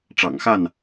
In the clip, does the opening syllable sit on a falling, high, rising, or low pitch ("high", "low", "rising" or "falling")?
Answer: low